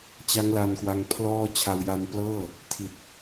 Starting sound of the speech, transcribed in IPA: t͡ɕ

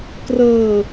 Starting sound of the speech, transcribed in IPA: k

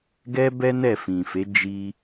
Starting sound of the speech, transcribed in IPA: ɡ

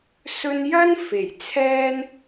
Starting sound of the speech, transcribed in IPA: s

